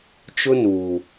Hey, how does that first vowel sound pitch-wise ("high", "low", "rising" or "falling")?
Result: high